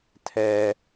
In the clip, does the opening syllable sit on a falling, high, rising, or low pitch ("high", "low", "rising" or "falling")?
low